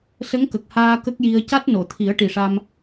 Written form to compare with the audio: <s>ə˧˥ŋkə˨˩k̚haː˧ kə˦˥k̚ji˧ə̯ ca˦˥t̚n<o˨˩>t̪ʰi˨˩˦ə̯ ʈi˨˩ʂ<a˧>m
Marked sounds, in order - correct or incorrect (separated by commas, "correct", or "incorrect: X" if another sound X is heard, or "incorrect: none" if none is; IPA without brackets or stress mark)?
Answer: correct, incorrect: o˨˩˨, correct